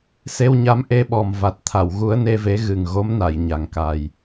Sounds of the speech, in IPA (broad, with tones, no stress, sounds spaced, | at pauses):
s e˧ w ɲ a˧˥ m ʔ e˧ ɓ ɔ˨˩ m v a˨˩ t̚ t̪ʰ a˨˩˨ w ɣ u˧˥ ə̯ n e˧ v e˧˥ ɣ ɨ˨˩ ŋ ɣ o˧˥ m n a˨˩˨ j ɲ a˨˩ ŋ k a˨˩ j